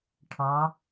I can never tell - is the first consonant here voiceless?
yes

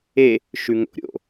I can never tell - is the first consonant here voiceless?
yes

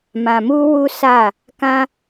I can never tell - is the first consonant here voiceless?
no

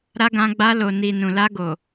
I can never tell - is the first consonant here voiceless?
no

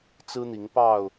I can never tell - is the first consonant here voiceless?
yes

